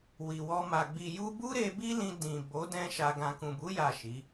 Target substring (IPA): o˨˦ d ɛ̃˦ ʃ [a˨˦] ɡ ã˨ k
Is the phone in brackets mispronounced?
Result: yes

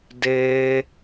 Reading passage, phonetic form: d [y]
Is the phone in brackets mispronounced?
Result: yes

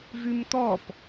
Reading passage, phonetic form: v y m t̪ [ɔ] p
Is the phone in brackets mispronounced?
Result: no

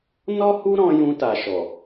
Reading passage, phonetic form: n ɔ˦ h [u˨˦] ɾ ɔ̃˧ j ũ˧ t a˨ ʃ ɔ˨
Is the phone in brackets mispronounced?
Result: yes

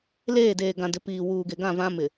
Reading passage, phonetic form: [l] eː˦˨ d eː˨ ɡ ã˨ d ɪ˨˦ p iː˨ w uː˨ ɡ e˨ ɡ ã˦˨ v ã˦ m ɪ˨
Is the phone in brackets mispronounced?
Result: no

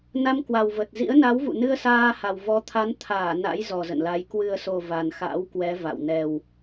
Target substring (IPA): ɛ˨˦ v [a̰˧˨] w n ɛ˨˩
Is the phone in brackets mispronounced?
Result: no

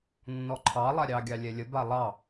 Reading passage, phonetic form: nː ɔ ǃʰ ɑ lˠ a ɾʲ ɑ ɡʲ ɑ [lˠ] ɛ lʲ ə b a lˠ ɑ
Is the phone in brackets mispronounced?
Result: yes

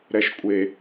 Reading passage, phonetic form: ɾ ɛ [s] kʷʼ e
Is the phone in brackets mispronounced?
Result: yes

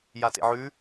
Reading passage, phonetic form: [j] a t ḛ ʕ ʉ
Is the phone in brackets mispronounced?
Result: no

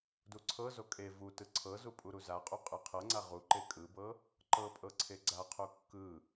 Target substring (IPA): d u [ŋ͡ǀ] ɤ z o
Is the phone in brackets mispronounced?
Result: yes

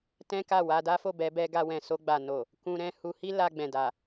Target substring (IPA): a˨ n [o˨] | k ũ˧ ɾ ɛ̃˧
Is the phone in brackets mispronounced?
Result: no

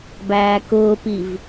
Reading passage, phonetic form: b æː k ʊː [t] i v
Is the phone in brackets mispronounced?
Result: yes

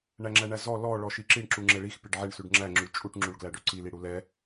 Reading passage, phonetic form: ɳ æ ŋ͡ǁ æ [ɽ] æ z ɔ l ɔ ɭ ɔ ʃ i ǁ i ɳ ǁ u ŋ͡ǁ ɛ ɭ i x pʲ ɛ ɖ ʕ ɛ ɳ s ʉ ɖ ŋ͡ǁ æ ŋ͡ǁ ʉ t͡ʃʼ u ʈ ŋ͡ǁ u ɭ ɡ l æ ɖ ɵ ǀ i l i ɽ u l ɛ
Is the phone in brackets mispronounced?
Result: yes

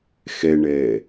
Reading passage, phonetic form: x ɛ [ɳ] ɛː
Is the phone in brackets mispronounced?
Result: no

